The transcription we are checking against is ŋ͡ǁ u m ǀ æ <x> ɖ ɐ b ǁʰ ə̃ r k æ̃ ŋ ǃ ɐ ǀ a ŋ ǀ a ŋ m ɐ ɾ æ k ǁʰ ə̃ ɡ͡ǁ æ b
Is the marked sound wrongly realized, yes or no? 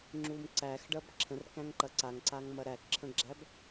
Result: no